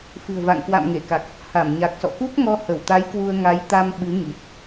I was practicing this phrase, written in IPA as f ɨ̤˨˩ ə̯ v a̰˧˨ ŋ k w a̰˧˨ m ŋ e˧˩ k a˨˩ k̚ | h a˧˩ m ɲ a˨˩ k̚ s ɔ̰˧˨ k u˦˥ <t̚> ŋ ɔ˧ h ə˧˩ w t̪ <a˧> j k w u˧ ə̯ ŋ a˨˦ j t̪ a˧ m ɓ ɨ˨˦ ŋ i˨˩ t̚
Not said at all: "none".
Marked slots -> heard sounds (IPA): k̚, a˨˦

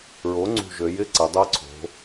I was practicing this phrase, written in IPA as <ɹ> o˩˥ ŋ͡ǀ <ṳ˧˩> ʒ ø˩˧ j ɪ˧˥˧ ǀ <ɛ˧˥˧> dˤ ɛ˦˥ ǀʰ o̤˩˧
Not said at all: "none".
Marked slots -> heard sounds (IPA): ɹ, ṳ˧˩, ɛ˩˧

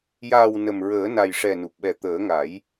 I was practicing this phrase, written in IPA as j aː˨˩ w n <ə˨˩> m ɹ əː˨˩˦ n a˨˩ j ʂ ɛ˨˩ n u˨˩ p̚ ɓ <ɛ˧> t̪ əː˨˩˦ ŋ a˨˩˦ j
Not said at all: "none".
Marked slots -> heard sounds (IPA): ə˨˩, ɛ˨˩

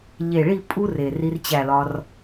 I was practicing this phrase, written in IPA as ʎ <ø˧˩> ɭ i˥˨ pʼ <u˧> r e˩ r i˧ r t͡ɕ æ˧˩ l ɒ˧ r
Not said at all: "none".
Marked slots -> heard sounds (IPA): e˧˩, u˧

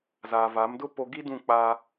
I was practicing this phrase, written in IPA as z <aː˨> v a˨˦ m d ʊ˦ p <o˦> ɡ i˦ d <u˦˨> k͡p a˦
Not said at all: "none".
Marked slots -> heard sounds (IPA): aː˨, o˦, ũ˦˨

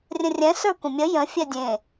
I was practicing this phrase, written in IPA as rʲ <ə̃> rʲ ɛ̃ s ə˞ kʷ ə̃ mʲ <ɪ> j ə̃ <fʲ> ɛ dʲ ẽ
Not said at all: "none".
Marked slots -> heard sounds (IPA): ə̃, ə, fʲ

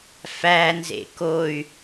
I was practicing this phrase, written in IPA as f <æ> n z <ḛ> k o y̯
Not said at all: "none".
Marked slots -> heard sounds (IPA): æ, ḛ

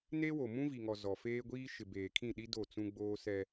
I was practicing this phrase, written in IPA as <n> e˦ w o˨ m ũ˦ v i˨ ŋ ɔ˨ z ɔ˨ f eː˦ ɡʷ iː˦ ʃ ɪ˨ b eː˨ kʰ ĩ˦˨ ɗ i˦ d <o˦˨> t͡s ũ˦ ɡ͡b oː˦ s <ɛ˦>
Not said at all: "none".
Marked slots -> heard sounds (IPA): n, o˦˨, ɛ˦

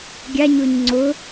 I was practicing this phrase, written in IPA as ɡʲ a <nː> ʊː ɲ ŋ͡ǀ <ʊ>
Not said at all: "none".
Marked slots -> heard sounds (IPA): ɲ, ʊ

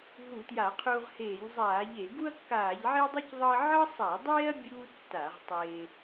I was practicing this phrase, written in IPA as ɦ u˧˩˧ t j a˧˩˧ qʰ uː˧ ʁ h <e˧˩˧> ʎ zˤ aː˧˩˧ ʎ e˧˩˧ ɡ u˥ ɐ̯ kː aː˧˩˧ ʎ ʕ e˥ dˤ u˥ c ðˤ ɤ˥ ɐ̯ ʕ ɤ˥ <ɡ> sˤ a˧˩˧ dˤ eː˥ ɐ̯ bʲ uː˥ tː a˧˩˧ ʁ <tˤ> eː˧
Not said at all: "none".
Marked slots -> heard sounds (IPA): eː˧˩˧, none, tˤ

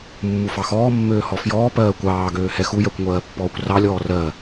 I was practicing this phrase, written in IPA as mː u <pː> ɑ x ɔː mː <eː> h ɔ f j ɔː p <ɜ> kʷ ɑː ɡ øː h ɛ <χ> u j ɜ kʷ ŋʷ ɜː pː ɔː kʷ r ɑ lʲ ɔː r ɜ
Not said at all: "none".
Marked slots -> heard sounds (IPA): f, øː, ɜː, x

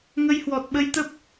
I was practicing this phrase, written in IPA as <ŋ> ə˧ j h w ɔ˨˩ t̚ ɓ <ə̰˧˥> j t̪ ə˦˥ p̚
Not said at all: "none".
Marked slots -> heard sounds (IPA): ŋ, ə˧

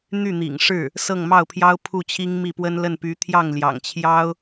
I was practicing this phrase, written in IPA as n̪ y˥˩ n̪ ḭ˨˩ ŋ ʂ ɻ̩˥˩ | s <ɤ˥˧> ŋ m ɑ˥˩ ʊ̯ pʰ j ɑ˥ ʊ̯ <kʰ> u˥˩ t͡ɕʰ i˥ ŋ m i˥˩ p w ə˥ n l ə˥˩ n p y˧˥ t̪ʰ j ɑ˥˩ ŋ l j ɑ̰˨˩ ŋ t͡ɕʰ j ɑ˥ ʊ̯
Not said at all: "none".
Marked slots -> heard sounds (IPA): ɤ˥˧, pʰ

